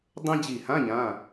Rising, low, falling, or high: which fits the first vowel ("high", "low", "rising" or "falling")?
high